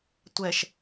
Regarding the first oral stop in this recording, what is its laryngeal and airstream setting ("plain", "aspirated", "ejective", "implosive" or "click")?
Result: plain